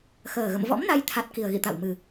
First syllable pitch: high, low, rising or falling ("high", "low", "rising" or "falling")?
low